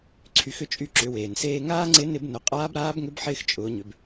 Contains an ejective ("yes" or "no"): yes